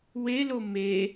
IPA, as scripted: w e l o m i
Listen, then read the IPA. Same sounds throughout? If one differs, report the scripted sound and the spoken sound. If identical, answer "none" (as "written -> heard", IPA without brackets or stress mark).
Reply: i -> e